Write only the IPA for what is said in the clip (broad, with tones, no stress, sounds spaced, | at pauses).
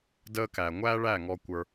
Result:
d əː˧ k æ˨ ŋʷ æ˦ ɭ æ˦˨ ŋ ɔ˧ kʷ ə˞˧